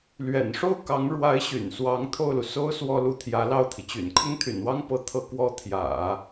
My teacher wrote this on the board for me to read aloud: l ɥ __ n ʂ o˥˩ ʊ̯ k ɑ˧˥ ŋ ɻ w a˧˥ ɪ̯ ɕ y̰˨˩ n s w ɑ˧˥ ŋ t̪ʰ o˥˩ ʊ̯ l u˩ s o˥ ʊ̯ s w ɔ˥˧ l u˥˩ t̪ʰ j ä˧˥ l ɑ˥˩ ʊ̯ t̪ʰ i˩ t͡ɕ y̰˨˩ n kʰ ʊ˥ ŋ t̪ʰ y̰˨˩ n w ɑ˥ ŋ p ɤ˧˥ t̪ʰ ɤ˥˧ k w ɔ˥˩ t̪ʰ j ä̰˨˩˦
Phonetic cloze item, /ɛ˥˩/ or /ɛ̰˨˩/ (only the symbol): ɛ̰˨˩